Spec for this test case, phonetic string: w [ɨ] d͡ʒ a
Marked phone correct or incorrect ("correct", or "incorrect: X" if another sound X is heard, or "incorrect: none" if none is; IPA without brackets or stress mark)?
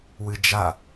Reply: correct